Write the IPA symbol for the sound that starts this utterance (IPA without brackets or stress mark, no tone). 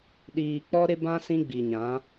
ɗ